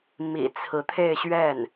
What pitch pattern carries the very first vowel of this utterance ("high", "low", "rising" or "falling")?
low